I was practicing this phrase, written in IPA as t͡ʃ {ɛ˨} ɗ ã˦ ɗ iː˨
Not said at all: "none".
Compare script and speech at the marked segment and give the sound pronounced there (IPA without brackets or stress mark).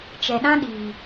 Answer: ɛ˨